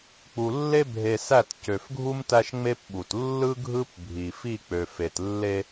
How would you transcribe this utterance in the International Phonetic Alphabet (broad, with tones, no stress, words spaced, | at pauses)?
k͡pu˨lːe˦ bʱe˨ sæ˦˨t cø˨fɡʱu˦m tæ˦ʃŋ͡me˦pɓu˨t lːɯ˦ɡʱɯ˦pbʱi˨fi˦˨ k͡pø˨fe˨tlːe˦